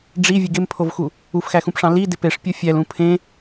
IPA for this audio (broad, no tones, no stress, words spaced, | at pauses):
ɖ͡ʐi vʲɯɡempʰovxu | ufxæxũpʂɑ̃ li depeʂpʲo fʲælũ pʰẽ